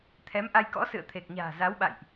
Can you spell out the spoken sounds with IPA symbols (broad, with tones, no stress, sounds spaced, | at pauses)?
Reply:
t̪ʰ ɛ˨˦ m ʔ a˧ j k ɔ̰˧˥ s ɨ̰˧˨ ə̯ t̪ʰ e˨˩ k̚ ɲ a̤ː˨˩ z a˨˦ w ɓ a̰˧˨ j ʔ